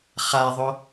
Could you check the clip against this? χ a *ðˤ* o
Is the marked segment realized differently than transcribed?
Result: no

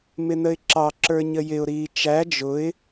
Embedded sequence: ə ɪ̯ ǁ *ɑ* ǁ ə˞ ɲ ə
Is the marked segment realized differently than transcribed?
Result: no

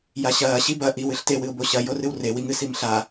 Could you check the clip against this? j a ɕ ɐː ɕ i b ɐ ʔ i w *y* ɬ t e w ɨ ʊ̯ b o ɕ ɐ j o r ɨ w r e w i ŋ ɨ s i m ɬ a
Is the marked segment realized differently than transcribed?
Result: yes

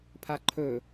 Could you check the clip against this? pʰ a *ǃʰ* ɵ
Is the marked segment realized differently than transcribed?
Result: no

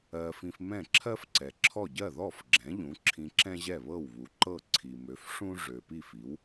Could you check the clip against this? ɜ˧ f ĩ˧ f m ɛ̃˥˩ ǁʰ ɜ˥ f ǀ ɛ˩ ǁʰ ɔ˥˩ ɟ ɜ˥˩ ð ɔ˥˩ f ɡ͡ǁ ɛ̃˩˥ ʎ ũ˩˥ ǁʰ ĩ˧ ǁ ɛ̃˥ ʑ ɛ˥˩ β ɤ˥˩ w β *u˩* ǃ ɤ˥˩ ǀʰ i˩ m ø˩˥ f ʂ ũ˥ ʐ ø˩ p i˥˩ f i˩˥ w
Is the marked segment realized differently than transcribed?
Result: no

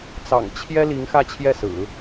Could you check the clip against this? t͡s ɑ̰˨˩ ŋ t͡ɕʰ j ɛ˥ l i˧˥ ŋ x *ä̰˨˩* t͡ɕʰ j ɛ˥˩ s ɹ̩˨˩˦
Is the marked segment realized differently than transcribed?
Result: yes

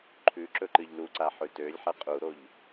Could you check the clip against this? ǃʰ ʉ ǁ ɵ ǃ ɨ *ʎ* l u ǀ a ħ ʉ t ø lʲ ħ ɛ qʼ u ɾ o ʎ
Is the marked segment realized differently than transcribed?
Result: no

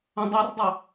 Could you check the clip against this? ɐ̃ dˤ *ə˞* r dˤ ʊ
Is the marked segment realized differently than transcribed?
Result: no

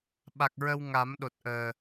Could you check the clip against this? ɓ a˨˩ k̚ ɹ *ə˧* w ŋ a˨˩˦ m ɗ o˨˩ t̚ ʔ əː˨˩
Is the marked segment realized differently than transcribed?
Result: no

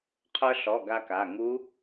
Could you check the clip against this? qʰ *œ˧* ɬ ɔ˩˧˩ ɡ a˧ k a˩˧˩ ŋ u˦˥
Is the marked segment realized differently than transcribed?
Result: no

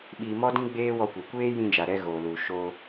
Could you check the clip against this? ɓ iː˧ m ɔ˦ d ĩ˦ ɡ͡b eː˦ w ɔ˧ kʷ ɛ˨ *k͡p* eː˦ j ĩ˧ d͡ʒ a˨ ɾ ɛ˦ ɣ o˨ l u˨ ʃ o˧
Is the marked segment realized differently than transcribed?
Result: yes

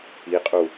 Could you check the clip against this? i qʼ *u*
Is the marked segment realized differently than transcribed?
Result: no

